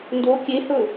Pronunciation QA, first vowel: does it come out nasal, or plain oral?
oral